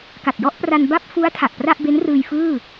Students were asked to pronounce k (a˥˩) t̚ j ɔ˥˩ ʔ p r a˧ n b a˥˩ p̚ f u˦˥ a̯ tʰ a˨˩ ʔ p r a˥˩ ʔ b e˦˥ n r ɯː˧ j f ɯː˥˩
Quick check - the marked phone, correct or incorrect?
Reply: incorrect